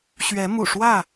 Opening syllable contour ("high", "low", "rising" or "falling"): rising